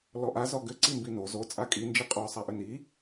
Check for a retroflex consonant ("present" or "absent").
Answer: absent